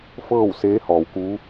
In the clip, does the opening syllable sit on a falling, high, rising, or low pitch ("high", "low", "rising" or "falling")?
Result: falling